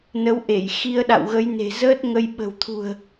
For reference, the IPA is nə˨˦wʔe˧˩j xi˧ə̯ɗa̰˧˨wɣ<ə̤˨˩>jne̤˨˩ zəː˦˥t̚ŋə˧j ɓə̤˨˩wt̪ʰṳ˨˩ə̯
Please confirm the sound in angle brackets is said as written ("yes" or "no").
no